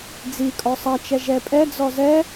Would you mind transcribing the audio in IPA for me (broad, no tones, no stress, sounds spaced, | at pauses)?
d͡z i kʼ ɔ sˤ ɐ t͡ʃ ɛ ʒ ɛ pʼ ɛ d͡z ɔ z ɛ